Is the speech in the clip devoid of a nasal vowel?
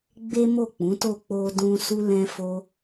no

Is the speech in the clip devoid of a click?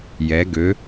yes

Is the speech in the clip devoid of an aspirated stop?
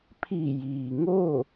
no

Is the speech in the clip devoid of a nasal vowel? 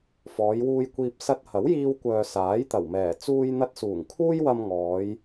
yes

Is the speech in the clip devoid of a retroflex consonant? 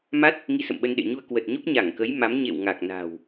yes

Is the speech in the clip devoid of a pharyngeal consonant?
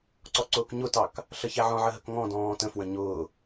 no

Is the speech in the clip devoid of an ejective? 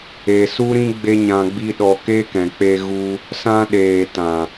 yes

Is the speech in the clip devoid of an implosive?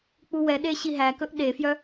no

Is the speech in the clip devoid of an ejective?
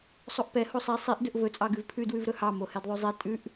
no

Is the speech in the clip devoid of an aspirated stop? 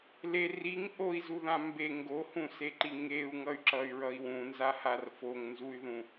yes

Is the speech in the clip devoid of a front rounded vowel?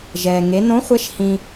yes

